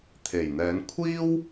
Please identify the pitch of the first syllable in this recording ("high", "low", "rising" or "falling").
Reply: low